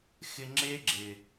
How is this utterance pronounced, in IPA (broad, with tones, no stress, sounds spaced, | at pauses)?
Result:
x ɪ˧ ŋ͡ǁ e˦ ɡ͡ǁ ɪ˨